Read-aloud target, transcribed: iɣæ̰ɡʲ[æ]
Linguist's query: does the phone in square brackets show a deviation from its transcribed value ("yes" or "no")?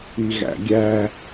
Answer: no